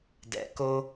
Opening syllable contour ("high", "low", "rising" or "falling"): low